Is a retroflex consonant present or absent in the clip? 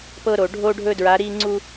present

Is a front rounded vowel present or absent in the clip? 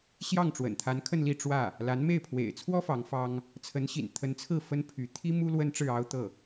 present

